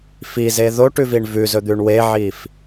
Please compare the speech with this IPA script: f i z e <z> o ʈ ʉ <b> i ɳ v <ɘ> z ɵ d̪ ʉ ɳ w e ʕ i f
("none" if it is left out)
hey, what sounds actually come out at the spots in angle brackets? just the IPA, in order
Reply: ð, v, ʉ

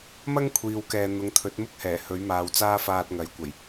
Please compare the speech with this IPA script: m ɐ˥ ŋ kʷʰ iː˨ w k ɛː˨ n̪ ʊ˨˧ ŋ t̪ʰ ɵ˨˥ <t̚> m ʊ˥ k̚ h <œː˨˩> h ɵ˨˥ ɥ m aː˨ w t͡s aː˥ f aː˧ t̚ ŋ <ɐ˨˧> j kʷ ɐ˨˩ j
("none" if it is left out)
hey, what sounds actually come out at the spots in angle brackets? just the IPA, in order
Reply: t̚, ɛː˨˩, ɐ˨˥

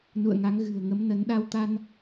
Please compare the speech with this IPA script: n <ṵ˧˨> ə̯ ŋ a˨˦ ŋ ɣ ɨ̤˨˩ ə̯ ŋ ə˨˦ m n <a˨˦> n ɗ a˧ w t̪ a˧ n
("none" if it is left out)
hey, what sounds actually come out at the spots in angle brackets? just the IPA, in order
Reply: ṵ˧˨, ə˨˦

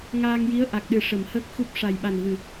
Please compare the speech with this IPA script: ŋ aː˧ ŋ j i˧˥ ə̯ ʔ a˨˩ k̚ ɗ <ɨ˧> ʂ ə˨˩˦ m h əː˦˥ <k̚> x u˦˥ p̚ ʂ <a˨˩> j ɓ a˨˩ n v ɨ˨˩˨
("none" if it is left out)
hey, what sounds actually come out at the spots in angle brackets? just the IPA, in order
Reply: ɨ˨˩, k̚, a˨˩

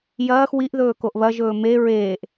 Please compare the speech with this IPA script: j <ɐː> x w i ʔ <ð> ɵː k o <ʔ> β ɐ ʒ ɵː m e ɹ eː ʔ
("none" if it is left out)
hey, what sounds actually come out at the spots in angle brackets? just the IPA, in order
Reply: ɐː, ð, ʔ

